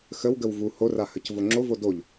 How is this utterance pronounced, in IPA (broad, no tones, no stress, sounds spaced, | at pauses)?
x ə w ɡ ə w v u h o r a h ə c v o ŋ͡ǁ o v o d o ʎ